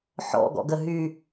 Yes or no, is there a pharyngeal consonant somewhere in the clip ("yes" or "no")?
yes